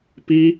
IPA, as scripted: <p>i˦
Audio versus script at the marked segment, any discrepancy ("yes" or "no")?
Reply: no